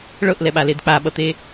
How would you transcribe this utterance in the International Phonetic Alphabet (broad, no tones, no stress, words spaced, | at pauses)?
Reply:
ɭɤʔlɛɓaled k͡paɓʌt̪e